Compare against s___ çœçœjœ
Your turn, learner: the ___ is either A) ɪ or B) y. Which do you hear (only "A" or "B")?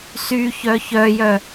B